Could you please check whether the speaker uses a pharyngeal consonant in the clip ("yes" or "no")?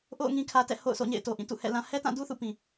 no